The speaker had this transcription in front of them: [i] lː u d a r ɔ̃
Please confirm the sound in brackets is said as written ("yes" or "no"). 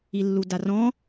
yes